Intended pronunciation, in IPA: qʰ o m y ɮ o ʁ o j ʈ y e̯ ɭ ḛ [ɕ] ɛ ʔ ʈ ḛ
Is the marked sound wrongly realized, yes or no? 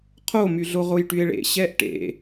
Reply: no